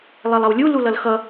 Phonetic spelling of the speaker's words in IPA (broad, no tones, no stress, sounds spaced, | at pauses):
lˠ ɛ lˠ ʌ w lʲ u l u l ʌ l x ʌ